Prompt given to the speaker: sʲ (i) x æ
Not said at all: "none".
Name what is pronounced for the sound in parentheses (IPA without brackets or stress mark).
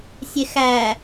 e